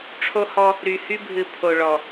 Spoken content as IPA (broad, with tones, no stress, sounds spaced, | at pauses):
ʈ͡ʂʰ o˦ h ɔ˦ | ɾ y˨ h y˦ bʱ ɨ˨ pʰ o˨ ɭ ɔ˨